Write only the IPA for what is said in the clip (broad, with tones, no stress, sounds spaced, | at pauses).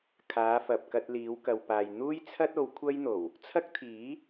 kʰ aː˨˧ f ɐ˨ p̚ k ɐ˧ t̚ l iː˨˧ w k ɐ˨ w p aː˨ j n̪ uː˥ j t͡sʰ ɐ˥ t̚ o˨˧ w kʷʰ ɐ˥ j n̪ o˨˩ w | t͡sʰ ɐ˥ k̚ t̪ʰ iː˨˥